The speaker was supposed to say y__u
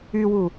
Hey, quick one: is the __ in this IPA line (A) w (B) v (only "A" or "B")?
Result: A